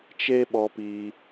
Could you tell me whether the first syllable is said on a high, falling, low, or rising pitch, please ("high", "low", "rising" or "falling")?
high